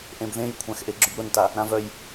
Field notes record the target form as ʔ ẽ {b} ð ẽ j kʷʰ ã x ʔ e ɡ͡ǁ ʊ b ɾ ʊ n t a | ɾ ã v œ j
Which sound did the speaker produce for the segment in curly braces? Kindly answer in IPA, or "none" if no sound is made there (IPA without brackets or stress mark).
b